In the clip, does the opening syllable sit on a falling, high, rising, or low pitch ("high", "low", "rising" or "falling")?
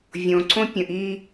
low